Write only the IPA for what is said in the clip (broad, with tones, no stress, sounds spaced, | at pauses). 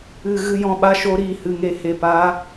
ɨ˨ ɣ ɨ˧ j ɔ̃˧ ɓ a˧ ʃ o˨˦ ɾ i˦˨ h ɨ˨ ŋ e˨ h e˨ p aː˨˦